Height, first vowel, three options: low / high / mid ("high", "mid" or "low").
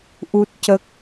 high